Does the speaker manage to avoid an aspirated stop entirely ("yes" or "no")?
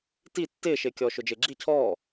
no